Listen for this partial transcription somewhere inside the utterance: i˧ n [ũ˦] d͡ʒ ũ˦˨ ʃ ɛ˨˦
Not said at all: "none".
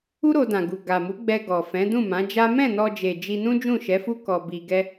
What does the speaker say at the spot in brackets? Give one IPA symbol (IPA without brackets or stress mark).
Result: ũ˦